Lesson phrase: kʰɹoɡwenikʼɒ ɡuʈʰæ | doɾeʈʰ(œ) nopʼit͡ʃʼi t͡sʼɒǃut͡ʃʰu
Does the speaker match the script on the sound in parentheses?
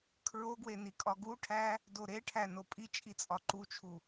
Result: no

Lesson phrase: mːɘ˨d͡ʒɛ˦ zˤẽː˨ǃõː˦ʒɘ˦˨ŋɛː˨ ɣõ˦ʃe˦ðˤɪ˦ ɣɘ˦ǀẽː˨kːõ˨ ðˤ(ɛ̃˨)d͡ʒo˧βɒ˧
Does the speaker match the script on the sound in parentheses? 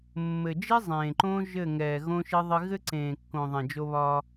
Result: yes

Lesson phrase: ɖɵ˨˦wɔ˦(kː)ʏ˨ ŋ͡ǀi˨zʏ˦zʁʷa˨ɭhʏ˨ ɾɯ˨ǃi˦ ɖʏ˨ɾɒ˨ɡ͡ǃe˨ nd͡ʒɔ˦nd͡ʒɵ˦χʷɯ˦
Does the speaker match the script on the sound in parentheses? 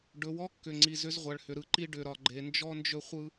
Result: yes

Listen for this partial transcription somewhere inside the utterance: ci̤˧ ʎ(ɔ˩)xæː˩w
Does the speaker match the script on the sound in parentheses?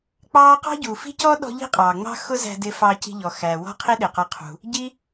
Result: yes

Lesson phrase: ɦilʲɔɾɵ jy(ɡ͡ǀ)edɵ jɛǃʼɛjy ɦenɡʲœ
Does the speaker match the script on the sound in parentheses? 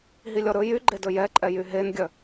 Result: no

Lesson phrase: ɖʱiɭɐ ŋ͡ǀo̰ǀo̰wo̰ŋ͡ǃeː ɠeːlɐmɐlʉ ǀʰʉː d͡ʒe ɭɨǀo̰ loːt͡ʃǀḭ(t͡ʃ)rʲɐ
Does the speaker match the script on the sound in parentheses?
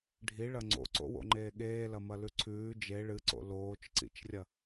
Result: yes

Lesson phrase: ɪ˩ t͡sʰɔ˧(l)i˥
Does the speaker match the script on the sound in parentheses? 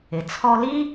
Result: yes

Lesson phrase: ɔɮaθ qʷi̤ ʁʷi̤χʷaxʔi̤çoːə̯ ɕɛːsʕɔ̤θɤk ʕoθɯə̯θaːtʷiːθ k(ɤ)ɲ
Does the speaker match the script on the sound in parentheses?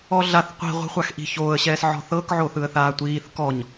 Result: no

